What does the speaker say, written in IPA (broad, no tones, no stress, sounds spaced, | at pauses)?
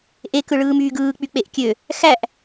ʔ e k ɯ ɭ ɯː m yː ɡ ɯː k͡p y k͡p e ʔ kʲ ø | x æ ʔ